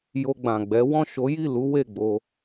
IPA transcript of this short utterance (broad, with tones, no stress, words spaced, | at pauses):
jo˧ɡ͡bã˨ɡ͡bɛ˨˦ wɔ̃˦˨ʃo˨˦ji˦˨lu˨˦ we˦˨ɡ͡bo˧